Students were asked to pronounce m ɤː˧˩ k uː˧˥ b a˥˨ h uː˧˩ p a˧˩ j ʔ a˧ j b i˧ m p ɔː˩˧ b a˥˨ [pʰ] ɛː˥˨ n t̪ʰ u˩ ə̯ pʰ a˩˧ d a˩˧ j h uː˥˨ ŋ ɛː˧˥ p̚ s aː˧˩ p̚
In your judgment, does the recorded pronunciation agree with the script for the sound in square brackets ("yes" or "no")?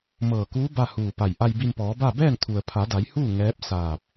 no